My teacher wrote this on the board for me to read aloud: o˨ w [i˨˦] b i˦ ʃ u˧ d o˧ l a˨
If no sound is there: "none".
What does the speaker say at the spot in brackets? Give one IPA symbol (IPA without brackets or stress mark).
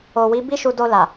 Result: i˨˦